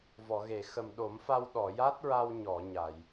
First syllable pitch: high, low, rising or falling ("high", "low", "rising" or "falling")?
low